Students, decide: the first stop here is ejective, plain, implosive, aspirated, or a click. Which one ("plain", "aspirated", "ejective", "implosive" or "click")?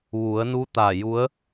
plain